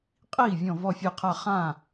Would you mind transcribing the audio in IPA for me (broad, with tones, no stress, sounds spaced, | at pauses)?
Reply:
qʼ iː˥˩ vʲ ɔ̃˧˩ v ɔ˧˩ fʲ e˧˩ qʰ a˧˩ χ ã˥˩